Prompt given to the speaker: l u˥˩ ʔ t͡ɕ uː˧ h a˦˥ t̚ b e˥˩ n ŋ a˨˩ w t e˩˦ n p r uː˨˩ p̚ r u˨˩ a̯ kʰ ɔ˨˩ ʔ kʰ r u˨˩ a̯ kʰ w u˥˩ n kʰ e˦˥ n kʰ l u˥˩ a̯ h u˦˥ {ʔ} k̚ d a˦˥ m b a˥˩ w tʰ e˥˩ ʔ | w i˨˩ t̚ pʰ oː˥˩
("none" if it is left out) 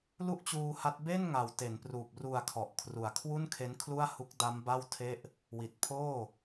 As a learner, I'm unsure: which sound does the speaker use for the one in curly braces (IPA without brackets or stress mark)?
none